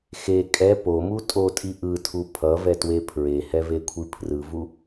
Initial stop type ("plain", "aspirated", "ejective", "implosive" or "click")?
ejective